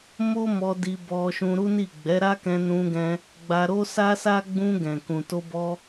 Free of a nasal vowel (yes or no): no